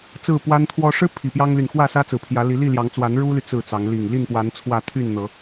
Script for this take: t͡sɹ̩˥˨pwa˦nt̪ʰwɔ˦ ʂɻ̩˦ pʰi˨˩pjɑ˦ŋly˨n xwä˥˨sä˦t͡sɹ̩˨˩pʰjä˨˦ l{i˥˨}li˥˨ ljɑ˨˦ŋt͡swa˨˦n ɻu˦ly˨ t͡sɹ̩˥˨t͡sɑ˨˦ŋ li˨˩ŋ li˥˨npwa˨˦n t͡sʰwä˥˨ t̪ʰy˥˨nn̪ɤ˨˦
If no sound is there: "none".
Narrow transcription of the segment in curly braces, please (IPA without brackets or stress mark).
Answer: i˨˦